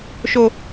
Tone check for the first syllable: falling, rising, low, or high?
low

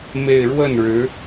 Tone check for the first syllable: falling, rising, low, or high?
falling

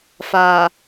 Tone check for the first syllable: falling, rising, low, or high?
low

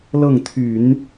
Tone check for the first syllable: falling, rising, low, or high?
falling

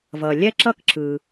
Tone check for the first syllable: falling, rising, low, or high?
low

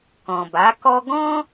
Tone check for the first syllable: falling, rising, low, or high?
low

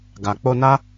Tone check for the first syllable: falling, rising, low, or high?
low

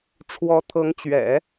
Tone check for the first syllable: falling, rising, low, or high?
rising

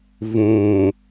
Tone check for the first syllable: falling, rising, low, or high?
low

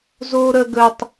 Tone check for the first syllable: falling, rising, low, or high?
high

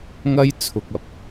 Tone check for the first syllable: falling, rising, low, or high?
high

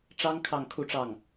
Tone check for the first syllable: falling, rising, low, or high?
high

